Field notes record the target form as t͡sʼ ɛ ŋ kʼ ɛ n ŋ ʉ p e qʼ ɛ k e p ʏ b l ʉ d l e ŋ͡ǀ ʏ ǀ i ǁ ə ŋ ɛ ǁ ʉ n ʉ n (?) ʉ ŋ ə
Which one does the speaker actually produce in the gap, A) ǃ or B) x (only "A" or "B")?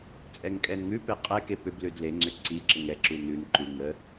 A